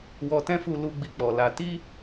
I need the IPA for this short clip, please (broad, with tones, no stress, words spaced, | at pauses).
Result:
wɔ˧tɛ̃˦fu˧ lu˧ ɡ͡bi˧k͡pɔ˨la˧ ti˦